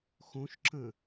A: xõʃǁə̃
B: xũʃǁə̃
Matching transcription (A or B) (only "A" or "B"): A